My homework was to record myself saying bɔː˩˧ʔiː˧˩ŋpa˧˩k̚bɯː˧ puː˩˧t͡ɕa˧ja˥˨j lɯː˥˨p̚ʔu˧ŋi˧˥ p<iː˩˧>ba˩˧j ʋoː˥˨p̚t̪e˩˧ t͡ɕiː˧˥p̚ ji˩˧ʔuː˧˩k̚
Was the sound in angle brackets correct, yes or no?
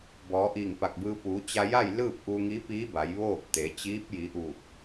no